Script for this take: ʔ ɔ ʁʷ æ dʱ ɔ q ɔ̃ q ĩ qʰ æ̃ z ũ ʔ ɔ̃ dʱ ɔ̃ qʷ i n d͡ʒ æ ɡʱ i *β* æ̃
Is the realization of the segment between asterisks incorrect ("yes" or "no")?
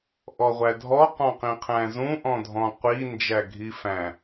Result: yes